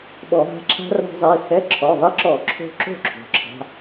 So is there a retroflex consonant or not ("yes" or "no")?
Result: no